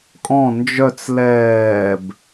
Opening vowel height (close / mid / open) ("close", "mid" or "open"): mid